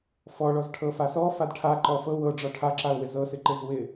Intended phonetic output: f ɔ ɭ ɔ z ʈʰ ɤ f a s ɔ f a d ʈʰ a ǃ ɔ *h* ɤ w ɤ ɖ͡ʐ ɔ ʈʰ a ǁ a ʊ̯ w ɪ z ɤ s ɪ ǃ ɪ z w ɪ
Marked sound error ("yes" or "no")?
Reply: yes